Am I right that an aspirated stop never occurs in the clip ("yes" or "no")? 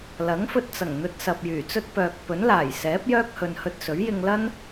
yes